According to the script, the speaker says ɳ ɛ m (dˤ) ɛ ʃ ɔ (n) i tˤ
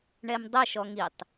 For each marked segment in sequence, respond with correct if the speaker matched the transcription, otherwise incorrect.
correct, incorrect: ŋ

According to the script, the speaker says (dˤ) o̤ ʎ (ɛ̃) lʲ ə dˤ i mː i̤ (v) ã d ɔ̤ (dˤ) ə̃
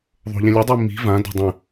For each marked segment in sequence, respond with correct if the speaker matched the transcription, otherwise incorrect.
incorrect: ðˤ, correct, correct, correct

